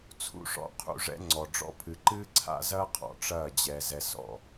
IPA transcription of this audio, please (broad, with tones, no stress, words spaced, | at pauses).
t͡sʰṵ˧ʂɔ̰˧qʰṵ˧ʐɛ̰˧ ŋ͡ǀɔ˨ɖ͡ʐɔ̰˦ pʰɨ˨ǃɨː˦ǀʰa̰˦zɐː˦ qʰɔ̰˧ʈ͡ʂɐː˦˨d͡ʑɛ˧ zɛ˧sɔ̰˦˨